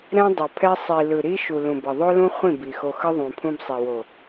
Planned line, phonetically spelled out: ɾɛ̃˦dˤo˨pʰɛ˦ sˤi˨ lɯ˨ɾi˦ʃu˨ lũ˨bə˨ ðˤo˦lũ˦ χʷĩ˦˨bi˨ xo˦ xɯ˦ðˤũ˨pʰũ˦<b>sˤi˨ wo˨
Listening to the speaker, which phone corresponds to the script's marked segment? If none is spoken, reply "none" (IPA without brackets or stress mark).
b